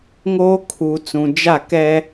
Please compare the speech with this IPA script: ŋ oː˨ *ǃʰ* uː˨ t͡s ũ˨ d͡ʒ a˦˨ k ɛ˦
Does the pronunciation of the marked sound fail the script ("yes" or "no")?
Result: yes